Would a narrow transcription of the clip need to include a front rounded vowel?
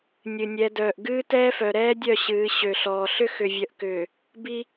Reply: yes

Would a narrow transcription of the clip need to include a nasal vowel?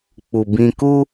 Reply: yes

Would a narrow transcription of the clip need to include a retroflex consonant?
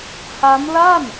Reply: no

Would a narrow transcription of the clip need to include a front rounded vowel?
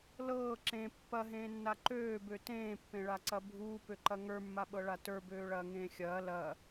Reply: yes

